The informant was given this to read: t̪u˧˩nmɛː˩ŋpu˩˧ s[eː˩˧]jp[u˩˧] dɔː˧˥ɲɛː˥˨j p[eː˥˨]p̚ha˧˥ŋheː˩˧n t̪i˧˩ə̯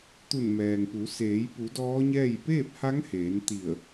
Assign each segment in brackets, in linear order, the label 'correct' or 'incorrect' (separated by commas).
correct, correct, correct